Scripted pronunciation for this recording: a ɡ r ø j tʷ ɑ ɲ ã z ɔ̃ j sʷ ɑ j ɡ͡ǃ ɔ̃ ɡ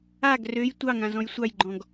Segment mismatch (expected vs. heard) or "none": ɲ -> ŋ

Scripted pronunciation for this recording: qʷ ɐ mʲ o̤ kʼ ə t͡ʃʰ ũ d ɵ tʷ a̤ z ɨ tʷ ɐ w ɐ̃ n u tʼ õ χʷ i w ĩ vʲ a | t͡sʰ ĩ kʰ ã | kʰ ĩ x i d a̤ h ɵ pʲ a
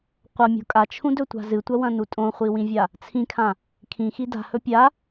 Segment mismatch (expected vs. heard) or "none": ə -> a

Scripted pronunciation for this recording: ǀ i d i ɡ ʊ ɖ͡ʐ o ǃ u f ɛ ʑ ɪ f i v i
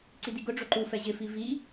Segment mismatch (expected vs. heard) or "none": none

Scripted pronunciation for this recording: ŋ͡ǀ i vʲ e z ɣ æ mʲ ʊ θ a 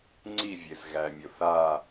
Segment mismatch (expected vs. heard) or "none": none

